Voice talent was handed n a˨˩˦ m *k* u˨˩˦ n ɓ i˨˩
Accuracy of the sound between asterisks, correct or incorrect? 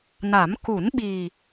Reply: correct